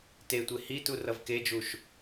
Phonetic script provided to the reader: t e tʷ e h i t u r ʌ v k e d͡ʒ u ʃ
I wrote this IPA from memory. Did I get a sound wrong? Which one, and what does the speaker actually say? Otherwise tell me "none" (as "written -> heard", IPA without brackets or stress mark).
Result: none